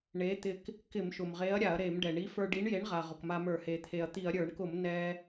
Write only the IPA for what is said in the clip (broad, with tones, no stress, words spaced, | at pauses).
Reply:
ɳe˨˥t̪ɪ˧k | kɪ˧˩˧mʃʊ˩mʁe˨˥ɐ̯ ɾʲa˧˩˧ɐ̯ɾe˧˩˧mɖɛ˩ ɳi˨˥fə˞˧ɖi˨˥ɳje˨˥ɳ ʁa˩ ʁʊ˩kma˧mə˞˧˩˧ he˩t̪ʰe˩ɐ̯t̪i˧˩˧ɐ̯ ɾʲə˞˧˩˧ɳkʊ˧˩˧m nɛ˧